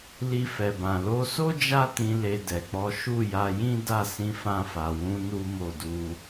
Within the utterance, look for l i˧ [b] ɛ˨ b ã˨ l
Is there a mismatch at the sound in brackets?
yes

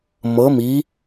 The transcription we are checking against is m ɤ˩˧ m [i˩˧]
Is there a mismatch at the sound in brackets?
no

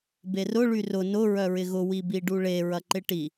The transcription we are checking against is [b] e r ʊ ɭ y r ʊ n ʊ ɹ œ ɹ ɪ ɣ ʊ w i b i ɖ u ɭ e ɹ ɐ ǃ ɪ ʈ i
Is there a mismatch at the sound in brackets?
no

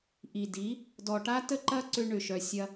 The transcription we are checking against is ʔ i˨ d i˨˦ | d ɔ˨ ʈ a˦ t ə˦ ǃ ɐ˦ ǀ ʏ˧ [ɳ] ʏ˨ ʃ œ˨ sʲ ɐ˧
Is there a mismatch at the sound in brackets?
no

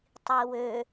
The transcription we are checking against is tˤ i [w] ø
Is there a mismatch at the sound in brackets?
no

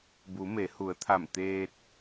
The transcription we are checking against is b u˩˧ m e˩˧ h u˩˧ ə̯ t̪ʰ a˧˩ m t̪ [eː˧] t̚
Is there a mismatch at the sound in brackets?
no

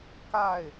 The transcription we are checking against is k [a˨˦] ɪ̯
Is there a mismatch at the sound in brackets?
yes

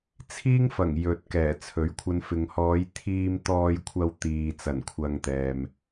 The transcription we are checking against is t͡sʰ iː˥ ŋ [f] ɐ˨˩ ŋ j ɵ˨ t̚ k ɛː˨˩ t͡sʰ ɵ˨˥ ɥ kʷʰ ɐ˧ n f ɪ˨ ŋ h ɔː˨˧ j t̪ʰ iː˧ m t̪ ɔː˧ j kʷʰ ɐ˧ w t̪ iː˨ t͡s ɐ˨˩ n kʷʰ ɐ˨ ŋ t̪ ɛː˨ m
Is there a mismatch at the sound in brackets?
no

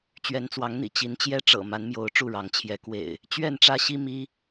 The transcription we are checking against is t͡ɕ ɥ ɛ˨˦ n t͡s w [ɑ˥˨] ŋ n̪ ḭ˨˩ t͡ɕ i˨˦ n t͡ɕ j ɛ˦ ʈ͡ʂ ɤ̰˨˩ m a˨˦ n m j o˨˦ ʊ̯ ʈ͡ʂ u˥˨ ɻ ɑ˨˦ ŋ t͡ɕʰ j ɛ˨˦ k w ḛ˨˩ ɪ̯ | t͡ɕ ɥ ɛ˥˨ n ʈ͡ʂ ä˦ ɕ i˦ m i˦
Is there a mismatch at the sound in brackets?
yes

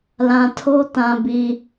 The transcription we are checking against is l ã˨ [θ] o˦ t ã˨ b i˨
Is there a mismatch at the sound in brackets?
yes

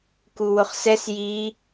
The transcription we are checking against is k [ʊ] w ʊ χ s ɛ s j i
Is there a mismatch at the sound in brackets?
yes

